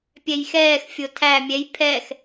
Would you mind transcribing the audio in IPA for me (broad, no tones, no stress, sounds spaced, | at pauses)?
pʲ ɛ j x ɛː x fʲ o tʰ æ mʲ ɛ j pʰ ɛ x